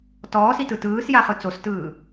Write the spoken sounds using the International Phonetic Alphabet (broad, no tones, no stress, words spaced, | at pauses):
tɔːsitɯ tɯːsjaχɯ t͡sostɯː